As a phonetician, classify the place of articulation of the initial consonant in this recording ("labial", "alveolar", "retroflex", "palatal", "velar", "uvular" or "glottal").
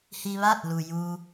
glottal